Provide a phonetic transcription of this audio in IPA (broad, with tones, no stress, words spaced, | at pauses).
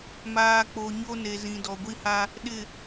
maː˨k͡po˨ ɲo˦ne˨zĩ˨ dɔ˨ɡʷi˦ha˦ | ɗɪ˨